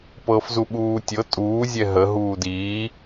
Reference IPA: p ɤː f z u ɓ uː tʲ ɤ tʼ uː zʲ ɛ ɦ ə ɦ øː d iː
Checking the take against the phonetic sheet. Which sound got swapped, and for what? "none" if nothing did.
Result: øː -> uː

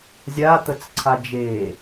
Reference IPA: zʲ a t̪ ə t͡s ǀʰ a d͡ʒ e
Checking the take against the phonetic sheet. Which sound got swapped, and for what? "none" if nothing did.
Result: none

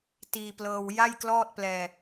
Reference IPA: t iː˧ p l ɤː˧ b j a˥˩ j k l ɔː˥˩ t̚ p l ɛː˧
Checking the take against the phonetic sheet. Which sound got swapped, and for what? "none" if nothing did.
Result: b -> w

